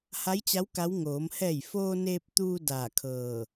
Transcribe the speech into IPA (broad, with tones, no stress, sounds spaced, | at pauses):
h a˧˥ j t͡ɕ a˧˥ w k a˧˥ w ŋ oː˩˧ m h ɛː˧˩ j f oː˧ n eː˧ p̚ t̪ uː˧ d aː˧˩ kʰ ɤː˧˩